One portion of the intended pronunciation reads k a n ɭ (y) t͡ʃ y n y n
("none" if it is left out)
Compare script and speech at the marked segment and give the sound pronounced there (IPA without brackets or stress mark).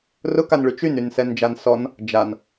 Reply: y